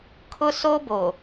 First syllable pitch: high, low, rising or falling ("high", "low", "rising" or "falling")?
high